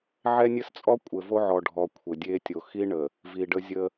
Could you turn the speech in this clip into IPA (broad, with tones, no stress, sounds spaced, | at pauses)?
ʕ ɛ˦ nʲ ɘ˦ s t͡sʼ ɔ˦ kʷʼ ɘ˨ v o˦ ʕ ɔ˨ ɖʱ ɔ˨ kʷʰ ɘ˨ dʲ e˦ tʲ o˨ x i˦ ɳ ə˨ | v i˨ ɖ ə˦ zʲ ə˦